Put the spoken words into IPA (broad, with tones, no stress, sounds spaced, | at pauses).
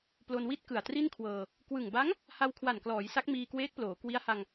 p l o˧ n w i˥˩ t̚ k ɯ˨˩ a̯ t r i˥˩ n kʰ w ɤː˧ | k w ɯ˨˩ ŋ b a˦˥ ŋ | h a˧ w kʰ w a˨˩ n k l ɔː˩˦ j s a˦˥ k̚ m iː˧ k w eː˦˥ k̚ p l oː˩˦ k w i˦˥ a̯ h a˧ ŋ